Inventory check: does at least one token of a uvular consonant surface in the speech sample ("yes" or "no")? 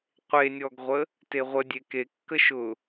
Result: yes